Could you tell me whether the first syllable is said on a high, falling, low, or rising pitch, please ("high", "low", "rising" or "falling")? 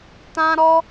high